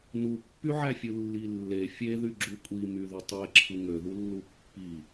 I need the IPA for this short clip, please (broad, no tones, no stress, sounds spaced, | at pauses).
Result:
n u pː y ʕ æ fʲ ɯ lː i lː e fʲ e ð y ɡ͡ǁ u kʷʼ i m y ð y tˤ e ǁʰ ɯ ŋ ø ð u lː u pː i